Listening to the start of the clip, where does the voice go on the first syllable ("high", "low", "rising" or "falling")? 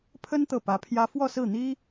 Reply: high